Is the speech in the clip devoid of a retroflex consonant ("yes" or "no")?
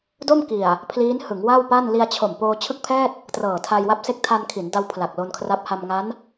yes